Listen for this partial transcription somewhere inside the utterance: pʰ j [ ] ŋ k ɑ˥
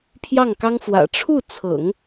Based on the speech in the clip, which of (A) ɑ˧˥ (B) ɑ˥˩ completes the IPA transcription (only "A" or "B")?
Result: B